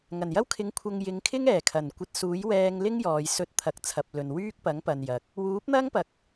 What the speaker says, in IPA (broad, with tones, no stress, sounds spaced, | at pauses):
ŋ ɐ˨˩ n j ɐ˥ w kʰ ɪ˨˥ ŋ kʷʰ ɐ˧ ŋ j ɪ˨˧ ŋ kʰ ɪ˥ ŋ ɛː˨˩ kʰ ɐ˨˩ n kʷ ɐ˧ t̚ s uː˨˥ j w ɛː˧ ŋ l ɪ˥ ŋ j ɔː˨ j s ɵ˧ t̚ t̪ʰ ɐ˨˥ k̚ t͡sʰ ɐ˨ p̚ l ɵ˨ n w yː˥ k̚ p ɐ˨˥ ŋ p ɐ˨ n j ɐ˨˥ k̚ | w uː˨˥ p̚ n̪ ɐ˥ ŋ p ɐ˨ k̚